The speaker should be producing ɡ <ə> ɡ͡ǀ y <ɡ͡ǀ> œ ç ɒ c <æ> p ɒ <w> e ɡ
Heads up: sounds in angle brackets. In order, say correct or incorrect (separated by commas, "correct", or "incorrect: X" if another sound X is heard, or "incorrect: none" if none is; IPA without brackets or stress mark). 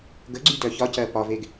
correct, incorrect: d, incorrect: ɜ, incorrect: v